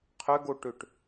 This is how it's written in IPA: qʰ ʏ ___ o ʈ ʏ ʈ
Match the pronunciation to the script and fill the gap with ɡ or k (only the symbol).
ɡ